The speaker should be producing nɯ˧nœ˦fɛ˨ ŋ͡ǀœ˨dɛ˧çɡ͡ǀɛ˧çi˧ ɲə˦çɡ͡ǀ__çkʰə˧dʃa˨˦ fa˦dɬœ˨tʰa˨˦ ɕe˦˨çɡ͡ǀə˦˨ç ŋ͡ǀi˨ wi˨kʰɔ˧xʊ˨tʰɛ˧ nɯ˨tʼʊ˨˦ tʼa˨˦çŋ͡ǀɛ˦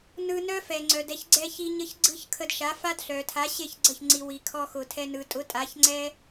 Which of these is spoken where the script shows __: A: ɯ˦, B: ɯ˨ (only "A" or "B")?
A